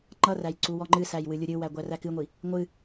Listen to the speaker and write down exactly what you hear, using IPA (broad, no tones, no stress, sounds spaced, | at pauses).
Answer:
ŋ͡ǃ ʌ r æ j ǀ u w ɔ ŋ͡ǃ ɨ s æ j w ɨ lʲ u ɾʲ ɨ w æ ɡʷ æ r æ k ɨ ŋʷ i | ŋʷ ɨ